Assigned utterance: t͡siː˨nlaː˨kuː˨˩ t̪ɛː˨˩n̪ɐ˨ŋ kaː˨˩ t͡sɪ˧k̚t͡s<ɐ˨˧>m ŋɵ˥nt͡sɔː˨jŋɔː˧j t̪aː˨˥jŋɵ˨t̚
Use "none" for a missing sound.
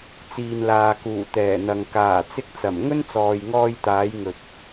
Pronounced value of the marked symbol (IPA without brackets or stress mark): ɐ˨˩